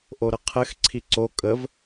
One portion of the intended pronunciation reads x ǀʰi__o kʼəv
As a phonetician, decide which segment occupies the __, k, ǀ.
ǀ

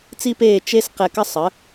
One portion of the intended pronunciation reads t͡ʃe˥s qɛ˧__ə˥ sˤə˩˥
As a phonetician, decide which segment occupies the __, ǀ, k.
k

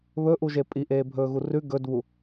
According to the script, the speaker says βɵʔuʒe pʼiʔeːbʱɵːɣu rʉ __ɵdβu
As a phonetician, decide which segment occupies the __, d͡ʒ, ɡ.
ɡ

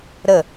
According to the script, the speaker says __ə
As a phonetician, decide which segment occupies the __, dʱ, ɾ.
ɾ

